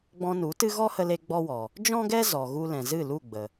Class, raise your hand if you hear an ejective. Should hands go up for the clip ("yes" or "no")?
no